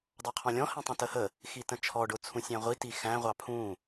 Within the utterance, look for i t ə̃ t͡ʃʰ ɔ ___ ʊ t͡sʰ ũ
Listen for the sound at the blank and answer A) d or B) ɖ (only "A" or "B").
B